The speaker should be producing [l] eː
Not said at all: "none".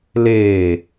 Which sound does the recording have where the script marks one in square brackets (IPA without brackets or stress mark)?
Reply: l